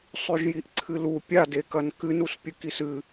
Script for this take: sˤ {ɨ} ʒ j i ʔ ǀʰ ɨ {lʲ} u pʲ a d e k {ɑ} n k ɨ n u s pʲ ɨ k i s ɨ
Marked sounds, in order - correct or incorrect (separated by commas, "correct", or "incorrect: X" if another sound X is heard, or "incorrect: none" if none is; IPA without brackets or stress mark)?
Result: incorrect: ʉ, incorrect: l, incorrect: ɐ